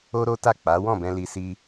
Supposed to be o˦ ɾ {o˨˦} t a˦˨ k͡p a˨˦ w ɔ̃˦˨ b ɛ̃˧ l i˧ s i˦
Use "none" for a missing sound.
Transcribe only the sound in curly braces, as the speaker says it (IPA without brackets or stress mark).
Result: o˦